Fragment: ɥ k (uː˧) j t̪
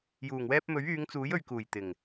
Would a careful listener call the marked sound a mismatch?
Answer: yes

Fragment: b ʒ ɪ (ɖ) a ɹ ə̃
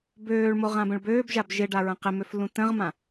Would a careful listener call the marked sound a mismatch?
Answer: no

